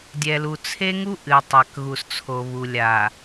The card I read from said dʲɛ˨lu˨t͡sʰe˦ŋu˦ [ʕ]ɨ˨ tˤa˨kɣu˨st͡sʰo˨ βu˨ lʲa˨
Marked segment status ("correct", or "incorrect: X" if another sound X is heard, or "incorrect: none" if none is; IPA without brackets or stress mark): incorrect: ʔ